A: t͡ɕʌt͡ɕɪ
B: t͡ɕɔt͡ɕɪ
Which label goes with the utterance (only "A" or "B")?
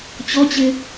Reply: B